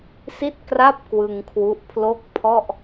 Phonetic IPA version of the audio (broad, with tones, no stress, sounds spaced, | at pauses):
s i˥˩ t̚ k r a˥˩ p̚ k w ɯ˧ ŋ kʰ w u˦˥ ʔ pʰ l o˥˩ k̚ pʰ ɔ˥˩ ʔ